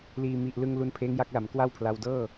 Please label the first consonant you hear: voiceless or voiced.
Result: voiced